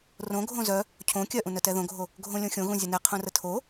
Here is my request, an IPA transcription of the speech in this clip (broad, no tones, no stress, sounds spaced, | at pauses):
r õ ɡʱ õ z œ | cʰ õ kʲ œ ʔ ũ n œ t ɛ ð õ ɡʱ o | ɡʱ õ lʲ õ xʲ õ ɣ ũ zʲ ə n ɛ qʰ ũ r ə tʰ o